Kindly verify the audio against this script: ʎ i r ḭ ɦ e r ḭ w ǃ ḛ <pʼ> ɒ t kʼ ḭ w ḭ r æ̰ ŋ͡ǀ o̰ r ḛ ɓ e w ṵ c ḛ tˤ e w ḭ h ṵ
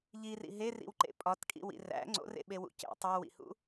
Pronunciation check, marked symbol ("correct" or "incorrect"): correct